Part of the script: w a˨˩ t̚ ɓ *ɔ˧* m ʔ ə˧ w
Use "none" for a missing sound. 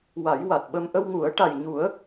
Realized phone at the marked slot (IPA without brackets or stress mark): ə˧